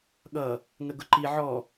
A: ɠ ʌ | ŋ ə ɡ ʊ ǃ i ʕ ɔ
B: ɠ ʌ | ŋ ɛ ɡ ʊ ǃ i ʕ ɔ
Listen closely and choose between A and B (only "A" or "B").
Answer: A